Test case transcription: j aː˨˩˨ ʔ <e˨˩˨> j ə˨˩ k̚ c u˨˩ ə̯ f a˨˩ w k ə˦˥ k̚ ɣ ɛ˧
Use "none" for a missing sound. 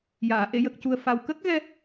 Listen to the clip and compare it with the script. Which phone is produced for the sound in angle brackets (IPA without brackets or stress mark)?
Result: e˨˩˨